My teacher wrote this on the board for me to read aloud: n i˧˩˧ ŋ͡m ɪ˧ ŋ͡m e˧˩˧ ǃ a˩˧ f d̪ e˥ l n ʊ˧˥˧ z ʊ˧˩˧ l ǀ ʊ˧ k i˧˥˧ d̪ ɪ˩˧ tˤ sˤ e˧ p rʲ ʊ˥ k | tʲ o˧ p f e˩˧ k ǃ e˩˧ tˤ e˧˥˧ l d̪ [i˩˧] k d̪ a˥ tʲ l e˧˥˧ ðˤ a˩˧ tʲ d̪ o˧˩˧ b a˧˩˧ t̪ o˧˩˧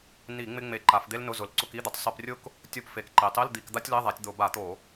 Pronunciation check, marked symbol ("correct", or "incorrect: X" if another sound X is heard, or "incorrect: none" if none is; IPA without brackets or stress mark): incorrect: i˧˩˧